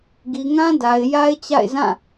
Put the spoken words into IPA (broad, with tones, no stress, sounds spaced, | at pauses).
ɡ i˨ ŋ ã˦ d a˨ ɪ̯ j a˦ ɪ̯ t͡ɕ a̰˦˨ ɪ̯ z ã˦˨